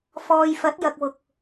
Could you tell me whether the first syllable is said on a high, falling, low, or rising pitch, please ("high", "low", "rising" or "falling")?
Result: low